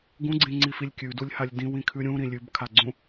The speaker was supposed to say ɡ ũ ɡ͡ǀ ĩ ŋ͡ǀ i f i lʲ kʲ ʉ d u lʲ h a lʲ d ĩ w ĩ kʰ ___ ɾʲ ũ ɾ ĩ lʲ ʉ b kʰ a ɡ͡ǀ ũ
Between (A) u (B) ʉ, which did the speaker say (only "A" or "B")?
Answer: B